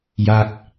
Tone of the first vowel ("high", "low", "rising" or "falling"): falling